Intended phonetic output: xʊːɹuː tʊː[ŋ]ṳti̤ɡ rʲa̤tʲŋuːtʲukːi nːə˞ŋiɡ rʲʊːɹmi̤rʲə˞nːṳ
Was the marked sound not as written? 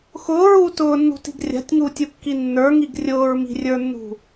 yes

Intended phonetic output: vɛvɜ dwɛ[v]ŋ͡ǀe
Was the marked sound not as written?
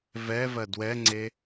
yes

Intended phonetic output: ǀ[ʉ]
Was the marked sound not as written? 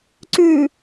no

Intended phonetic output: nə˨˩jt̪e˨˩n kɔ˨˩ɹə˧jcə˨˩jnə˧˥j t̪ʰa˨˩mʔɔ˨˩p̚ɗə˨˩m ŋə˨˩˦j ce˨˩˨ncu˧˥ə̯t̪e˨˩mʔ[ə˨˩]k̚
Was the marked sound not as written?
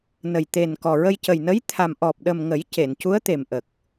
no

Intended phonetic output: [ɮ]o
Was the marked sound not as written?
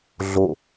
no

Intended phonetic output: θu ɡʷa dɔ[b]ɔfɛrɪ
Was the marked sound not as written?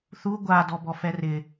no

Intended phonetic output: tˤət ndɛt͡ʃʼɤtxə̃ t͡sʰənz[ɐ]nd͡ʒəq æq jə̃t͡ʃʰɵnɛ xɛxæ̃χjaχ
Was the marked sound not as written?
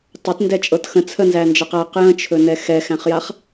yes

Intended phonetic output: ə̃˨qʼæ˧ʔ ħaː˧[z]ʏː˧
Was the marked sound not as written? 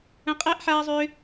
yes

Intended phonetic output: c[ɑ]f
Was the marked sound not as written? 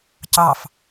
no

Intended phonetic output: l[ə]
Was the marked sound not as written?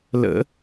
yes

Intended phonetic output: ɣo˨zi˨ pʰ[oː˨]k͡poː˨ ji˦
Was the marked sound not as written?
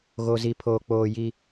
no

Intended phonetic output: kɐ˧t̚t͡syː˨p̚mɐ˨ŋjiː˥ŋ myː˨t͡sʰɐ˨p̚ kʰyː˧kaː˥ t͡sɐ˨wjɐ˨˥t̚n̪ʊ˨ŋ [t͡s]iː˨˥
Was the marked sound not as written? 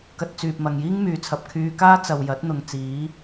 no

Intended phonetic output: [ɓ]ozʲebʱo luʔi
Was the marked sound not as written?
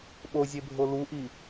no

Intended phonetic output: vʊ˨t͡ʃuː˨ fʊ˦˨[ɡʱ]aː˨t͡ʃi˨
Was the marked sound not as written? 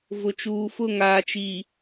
yes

